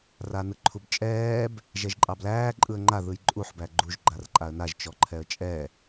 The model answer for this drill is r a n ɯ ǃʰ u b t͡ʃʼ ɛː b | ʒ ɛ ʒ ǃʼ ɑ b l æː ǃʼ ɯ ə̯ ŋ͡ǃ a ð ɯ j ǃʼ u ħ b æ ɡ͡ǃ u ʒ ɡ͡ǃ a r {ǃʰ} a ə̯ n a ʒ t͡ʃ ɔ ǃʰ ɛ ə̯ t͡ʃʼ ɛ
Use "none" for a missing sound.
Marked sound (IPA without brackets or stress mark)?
ǃʼ